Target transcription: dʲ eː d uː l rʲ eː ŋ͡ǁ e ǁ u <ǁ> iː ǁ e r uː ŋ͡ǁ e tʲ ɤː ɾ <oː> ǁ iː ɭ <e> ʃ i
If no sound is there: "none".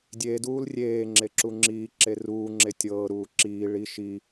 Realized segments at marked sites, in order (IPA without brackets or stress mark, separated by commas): ŋ͡ǁ, uː, i